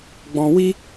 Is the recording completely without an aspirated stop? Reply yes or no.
yes